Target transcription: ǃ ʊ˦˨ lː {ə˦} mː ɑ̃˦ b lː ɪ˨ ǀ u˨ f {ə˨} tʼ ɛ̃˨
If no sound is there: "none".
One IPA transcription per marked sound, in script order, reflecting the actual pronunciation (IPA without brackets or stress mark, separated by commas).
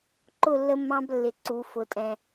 ə˦, ʊ˨